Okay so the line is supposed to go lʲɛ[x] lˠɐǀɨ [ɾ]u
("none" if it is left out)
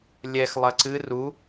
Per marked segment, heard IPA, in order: x, r

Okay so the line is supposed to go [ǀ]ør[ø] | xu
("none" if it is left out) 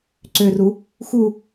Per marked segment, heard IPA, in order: ǀ, u

